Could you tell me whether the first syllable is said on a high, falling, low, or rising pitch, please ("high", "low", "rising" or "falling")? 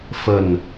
low